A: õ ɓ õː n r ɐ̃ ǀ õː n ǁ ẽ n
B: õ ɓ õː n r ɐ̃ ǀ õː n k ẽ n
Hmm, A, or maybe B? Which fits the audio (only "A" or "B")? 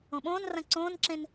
A